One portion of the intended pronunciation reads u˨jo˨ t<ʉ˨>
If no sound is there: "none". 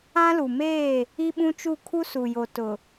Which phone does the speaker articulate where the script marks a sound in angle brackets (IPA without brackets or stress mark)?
ʊ˨